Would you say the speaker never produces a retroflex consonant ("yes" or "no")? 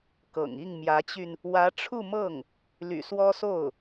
no